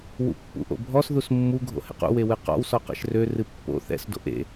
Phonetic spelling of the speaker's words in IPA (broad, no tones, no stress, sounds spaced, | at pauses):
w ṵ pː ṵ ʔ o̰ bʱ ɔ s ð u s mː u ɡʱ o̰ h ɛ̰ q ṵ w e w ɨ q ɔ̰ w s ɔ q ɛ̰ ʃ r ø r ɨ pː o̰ θ ɛ̰ s d o̰ ʔ ḛ